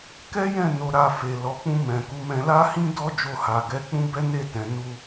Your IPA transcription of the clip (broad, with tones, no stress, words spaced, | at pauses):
kɛ˦jɛ̃˦˨ no˧ɾa˧ fe˨ lɔ˨k͡pũ˧ mɛ̃˨ku˨˦mɛ̃˧ la˦hĩ˦dɔ˦ d͡ʒo˧ha˨ɡɛ˨˦k͡pũ˦ bɛ˦ne˦˨tɛ̃˨ nu˧